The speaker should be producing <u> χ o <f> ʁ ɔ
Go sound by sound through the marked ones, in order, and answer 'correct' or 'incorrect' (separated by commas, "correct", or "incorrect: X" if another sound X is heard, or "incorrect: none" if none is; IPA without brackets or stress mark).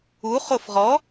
correct, correct